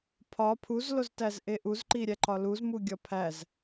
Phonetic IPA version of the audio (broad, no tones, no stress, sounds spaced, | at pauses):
pʰ ɒ pʰ u z l o z t æ z ʔ e ʔ u z ǃ i ɾʲ æ ǃ ɒ l u z m u ɡʲ ɒ pʰ æ z